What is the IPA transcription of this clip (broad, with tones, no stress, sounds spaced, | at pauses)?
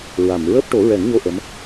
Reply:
ɹ a˨˩˨ m ɹ əː˦˥ p̚ ʈ o˨˩˦ ɹ ɛ˨˩˦ ŋ ɲ o˧ ʔ ə˧˥ m